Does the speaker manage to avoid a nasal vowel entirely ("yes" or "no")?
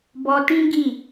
no